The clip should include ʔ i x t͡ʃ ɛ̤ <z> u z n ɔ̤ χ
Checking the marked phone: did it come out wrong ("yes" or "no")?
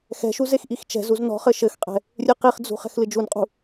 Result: no